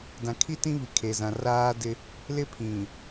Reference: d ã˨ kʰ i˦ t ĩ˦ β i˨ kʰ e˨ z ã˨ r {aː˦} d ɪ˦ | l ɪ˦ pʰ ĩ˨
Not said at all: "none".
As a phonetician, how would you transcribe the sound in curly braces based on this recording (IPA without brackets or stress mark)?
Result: aː˦